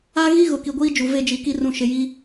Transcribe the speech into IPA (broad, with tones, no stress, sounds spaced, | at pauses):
a˦ ɣ i˦ ɣ ʊ˨ k i˨ ɡʷ iː˦ d͡ʒ u˨ v e˦ d͡ʒ i˨ k i˦ r ũ˨ ʃ ɪ˨ j i˦